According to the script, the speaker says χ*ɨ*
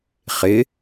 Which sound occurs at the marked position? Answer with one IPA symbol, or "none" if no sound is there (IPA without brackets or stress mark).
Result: ɪ